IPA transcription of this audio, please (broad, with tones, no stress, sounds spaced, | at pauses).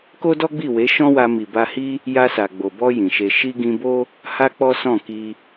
k o˦ d ɔ˦ ɡ͡b i˦˨ w e˨˦ ʃ ɔ̃˦ w a˧ m i˨ b a˧ h i˦ | j a˧ s a˨ ɡ͡b o˨ b ɔ˧ j ĩ˨ ʃ e˧ ʃ i˧ ɡ ĩ˧ b o˦ | h a˦ k͡p ɔ˦ s ɔ̃˦˨ k i˧